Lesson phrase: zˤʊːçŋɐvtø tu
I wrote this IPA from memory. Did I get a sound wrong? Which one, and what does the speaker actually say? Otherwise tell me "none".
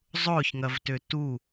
none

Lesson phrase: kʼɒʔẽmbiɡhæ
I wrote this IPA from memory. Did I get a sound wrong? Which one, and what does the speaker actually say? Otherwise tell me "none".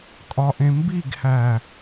none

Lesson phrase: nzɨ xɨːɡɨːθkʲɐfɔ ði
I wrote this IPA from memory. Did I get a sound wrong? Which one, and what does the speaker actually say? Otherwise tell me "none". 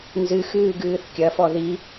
none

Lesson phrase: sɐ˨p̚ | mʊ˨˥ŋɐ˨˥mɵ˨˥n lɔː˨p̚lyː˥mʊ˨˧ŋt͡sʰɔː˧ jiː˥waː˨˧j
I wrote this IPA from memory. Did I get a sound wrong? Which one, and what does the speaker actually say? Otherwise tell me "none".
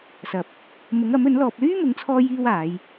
none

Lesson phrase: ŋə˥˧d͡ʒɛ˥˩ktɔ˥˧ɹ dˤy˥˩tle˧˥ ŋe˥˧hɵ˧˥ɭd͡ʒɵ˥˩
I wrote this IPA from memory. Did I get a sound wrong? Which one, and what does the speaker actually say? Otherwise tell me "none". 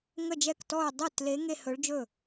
none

